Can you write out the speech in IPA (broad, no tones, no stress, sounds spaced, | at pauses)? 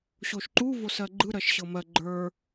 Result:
ɕ o ʃ ǃ u v o s ɜ ɡ͡ǃ ɯ ɾ ɜ ʃ ɕ ɤ m ɜ ɡ͡ǃ ə˞